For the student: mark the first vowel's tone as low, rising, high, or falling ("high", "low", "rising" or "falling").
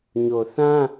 low